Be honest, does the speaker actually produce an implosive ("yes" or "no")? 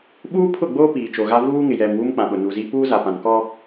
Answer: yes